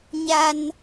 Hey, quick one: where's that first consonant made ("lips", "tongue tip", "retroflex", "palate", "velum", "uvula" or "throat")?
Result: palate